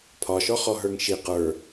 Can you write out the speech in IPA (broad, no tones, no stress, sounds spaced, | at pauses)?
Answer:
pʰ ɒ ʃ ɔ χ ɔ ɦ ə˞ ŋ ʃ i q ə˞